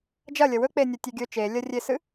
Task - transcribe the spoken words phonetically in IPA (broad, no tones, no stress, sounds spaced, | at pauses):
d͡ʒ ɐ lʲ ɐ w ɵ k͡p e nʲ ɐ tʲ e ɡʲ ɵ t͡ʃ e lʲ ɐ rʲ e s ɨ